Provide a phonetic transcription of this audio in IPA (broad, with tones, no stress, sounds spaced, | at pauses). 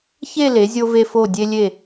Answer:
ç e˥˧ l e˩˧ zʲ o˧ v e˧ f o˧˩ dʲ e˧ lʲ e˧˩